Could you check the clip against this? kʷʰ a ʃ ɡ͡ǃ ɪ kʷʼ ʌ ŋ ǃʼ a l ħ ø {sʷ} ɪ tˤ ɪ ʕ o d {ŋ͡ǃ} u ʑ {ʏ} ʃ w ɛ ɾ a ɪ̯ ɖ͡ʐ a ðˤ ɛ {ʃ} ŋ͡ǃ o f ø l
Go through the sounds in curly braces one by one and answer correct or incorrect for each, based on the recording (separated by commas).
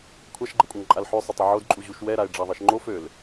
incorrect, incorrect, incorrect, correct